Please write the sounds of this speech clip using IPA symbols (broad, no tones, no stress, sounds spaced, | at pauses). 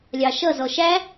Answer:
lʲ ɑ ʃ ʌ z ɔ ʃ æ